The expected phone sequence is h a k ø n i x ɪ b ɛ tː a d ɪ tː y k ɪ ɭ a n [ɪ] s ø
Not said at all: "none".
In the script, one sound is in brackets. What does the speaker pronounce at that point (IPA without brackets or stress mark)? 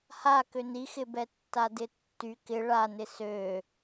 ɪ